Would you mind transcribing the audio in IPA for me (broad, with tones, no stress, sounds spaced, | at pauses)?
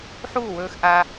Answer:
ħ uː˦˨ w ɵː˧ x ʔ a˧